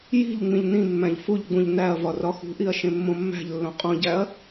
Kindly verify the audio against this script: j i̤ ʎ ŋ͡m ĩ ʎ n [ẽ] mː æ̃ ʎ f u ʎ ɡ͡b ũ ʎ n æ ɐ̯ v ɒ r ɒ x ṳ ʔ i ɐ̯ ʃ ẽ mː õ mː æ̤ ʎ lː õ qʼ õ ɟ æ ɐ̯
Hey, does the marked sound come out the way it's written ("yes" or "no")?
no